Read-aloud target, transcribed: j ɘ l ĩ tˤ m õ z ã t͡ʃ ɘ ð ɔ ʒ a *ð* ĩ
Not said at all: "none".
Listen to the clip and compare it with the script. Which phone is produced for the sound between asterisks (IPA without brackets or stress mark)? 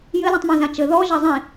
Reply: zˤ